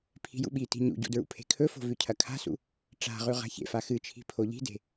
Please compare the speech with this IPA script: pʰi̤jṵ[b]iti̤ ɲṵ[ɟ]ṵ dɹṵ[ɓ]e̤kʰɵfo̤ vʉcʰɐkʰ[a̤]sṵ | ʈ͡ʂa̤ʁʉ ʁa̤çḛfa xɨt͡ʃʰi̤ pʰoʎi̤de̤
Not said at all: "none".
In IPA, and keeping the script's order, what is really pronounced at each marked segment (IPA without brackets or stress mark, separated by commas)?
ɓ, ɟ, pʰ, a̤